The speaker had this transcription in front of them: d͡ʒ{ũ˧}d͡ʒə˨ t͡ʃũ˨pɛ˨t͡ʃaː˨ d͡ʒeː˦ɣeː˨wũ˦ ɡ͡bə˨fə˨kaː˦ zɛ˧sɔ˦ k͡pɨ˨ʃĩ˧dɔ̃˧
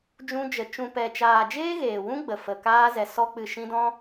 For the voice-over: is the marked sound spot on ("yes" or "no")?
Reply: yes